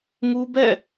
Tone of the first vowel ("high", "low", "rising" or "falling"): high